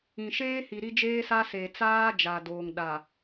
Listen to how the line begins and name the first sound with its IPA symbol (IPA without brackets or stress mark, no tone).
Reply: ĩ